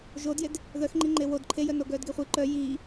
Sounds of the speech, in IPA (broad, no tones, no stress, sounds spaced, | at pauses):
ʒ o d j e d | ð œ x ŋ͡ǃ i ŋ͡ǃ e w o d ǃʰ e j œ n o ɡ œː d ɡ e χʷ i ǃ œ j iː